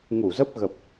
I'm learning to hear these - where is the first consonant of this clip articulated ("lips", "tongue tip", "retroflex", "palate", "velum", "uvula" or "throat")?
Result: velum